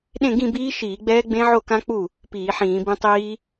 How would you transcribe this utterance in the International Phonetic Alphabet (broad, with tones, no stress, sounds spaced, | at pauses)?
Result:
ɗ ẽ˥˧ ɡ ĩ˥˧ b iː˦˥ ʃ iː˧˩˧ ɡ͡b ɛː˦˥ ɡ͡b ẽ˦˥ ʕ o˥˧ k ã˦˥ k͡p u˥˩ | p iː˧˩˧ ħ ĩː˧˩˧ b ĩ˦˥ tˤ iː˦˥